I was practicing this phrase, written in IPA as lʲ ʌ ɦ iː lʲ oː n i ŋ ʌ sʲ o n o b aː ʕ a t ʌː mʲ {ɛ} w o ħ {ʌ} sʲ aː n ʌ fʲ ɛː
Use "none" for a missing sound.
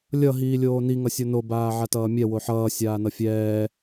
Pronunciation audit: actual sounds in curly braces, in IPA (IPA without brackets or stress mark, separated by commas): ɛ, ʌː